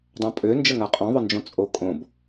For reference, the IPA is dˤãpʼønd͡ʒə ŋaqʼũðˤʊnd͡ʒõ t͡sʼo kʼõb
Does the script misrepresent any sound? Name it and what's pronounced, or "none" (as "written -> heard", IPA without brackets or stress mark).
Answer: ũ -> õ